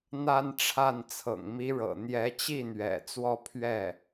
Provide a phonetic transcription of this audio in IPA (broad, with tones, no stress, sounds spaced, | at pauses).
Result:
n̪ a˥˧ n ʈ͡ʂʰ a˥˩ n t͡sʰ ɤ̰˨˩ ŋ m i˧˥ ɻ ɤ̰˨˩ n̪ j ɛ˧˥ t͡ɕ i˥˩ n̪ ɥ ɛ̰˨˩ t͡s w ɔ˥˧ pʰ ɥ ɛ˥˩